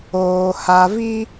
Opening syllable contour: low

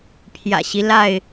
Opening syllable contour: low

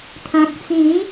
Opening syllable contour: low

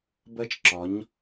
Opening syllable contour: high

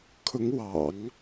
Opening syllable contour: rising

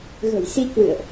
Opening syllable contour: low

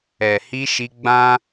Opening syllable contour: low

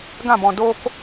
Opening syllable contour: falling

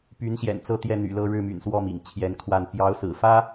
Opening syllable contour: rising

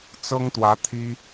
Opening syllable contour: high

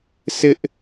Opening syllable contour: high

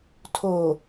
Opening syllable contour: low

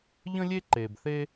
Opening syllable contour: high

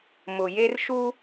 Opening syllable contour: low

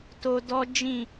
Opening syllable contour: high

